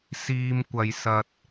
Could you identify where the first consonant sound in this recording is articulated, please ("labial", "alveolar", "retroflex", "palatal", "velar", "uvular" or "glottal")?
alveolar